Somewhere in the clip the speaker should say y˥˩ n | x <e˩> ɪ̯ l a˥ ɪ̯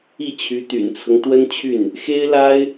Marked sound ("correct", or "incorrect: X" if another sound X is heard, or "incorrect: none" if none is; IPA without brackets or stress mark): incorrect: e˥